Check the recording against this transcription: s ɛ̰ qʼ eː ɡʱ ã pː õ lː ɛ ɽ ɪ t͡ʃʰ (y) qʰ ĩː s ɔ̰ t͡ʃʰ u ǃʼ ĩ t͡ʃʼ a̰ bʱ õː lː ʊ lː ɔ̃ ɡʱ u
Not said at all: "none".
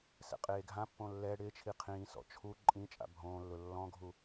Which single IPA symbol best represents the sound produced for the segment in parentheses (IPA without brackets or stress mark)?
i